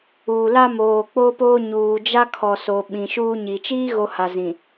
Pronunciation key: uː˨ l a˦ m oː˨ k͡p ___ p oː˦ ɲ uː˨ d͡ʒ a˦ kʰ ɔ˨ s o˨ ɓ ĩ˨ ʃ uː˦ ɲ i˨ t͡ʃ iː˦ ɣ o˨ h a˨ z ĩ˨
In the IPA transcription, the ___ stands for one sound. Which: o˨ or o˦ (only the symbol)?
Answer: o˦